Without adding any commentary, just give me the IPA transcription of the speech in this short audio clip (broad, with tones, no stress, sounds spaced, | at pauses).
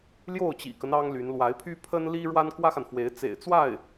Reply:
l j o˥˩ ʊ̯ t͡ɕ ḭ˨˩ k ə˦ n ɑ˥ ŋ l y˧˥ n l w a˧˥ ɪ̯ pʰ y˥ pʰ ə˥ n l i˥ ɻ w a˥ n k w ä˥ x a˨ n f w e˧˥ ɪ̯ t͡s ḛ˨˩ ɪ̯ t͡s w a˥˩ ɪ̯